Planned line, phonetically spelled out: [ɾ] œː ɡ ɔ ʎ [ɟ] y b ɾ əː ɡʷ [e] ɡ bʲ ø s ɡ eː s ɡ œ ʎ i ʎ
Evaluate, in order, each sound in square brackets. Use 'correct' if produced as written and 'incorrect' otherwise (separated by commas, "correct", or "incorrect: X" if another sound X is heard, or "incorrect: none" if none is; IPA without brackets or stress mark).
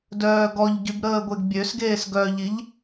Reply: incorrect: d, correct, correct